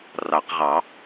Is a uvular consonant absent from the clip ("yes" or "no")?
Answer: no